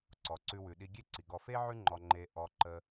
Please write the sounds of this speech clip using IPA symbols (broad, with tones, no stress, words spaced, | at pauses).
ǀɔ˩ǀʉ˨wʉ˩ɗi˨ ɡʲe˦ǀi˩ɡɔ˨ fe˥ʕʉ˦ŋ͡ǃɔ˨ ŋ͡ǃe˨ʔɔ˨ǃə˨